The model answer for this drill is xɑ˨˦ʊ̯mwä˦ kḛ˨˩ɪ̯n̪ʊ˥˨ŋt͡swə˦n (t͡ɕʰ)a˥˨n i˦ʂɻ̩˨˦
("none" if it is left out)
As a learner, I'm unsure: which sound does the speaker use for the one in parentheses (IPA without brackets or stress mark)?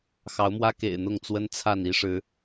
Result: t͡sʰ